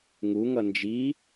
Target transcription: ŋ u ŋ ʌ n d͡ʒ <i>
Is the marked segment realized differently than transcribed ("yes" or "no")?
no